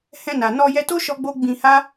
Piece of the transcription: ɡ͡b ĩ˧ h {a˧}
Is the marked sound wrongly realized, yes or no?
yes